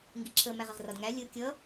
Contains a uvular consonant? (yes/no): yes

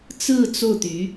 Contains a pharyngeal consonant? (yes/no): no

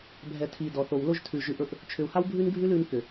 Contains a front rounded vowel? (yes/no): yes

